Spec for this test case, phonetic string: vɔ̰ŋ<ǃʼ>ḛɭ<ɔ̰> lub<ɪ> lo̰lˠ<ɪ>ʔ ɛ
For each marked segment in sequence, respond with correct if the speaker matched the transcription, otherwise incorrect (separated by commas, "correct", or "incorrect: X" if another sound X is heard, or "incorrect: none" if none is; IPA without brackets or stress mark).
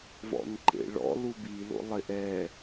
incorrect: ǃ, correct, incorrect: i, correct